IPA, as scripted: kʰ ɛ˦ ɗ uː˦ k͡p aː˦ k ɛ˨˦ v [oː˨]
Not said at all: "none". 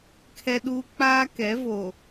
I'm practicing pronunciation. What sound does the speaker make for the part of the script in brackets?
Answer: oː˨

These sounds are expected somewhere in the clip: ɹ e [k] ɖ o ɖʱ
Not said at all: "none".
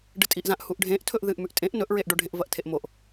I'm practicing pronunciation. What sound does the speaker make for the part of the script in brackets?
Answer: ʔ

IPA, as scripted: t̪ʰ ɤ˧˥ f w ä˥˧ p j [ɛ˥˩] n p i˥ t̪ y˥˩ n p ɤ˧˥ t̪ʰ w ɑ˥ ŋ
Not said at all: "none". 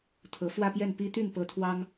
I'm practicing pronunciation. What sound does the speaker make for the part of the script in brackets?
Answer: ɛ˥˩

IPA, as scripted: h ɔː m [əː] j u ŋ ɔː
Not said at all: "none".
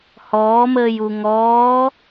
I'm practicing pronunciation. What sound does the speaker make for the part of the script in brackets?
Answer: əː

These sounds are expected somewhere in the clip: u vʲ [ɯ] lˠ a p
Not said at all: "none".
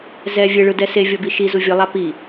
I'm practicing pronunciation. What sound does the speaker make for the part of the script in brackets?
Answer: ɯ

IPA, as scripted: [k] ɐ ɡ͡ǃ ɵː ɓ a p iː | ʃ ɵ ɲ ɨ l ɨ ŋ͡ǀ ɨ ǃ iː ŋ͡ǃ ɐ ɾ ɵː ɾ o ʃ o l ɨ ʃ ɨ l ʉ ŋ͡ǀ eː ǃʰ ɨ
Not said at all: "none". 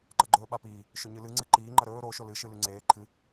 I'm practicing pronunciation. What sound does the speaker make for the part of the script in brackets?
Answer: ǃ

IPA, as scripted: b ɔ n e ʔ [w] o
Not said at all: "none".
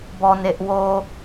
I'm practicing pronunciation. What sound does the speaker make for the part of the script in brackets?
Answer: w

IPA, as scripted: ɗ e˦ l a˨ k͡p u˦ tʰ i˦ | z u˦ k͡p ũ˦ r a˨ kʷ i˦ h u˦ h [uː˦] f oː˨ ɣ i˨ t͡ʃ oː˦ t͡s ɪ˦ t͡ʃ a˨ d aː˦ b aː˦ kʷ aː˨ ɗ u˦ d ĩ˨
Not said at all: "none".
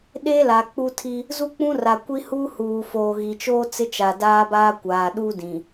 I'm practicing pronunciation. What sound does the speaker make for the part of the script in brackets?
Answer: uː˨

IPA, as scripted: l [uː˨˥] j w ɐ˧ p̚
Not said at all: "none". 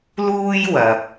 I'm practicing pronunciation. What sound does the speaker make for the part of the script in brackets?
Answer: uː˥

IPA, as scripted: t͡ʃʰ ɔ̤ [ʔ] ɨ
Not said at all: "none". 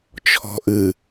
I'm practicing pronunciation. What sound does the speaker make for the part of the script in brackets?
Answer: ʔ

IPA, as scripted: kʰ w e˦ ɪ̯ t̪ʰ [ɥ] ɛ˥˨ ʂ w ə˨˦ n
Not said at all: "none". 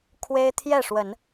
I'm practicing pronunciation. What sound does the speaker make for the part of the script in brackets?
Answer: j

